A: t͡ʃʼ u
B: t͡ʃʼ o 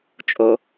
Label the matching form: B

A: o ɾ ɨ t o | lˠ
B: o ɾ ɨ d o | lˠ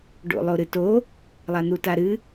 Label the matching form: A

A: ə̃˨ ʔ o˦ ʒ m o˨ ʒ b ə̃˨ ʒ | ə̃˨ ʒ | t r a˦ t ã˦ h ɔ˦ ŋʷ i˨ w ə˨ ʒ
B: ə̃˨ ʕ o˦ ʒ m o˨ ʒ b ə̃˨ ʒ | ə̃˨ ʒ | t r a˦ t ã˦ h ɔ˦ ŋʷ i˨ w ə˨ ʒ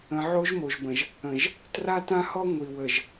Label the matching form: B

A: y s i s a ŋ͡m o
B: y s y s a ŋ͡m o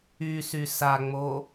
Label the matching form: B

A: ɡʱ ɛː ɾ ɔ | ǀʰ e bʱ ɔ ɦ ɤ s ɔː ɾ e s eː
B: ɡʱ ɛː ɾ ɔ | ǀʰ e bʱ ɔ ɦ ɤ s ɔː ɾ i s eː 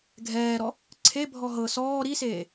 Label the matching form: B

